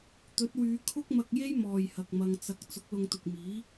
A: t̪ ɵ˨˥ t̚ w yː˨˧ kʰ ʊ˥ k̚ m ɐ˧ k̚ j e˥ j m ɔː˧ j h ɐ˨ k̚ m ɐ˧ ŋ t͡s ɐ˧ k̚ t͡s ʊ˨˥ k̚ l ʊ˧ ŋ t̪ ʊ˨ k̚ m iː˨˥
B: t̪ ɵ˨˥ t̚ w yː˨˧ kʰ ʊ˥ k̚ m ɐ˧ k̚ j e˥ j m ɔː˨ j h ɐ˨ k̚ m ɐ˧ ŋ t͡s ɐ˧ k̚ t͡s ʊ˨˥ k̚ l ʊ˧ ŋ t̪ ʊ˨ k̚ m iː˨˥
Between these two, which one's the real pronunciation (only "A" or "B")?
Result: B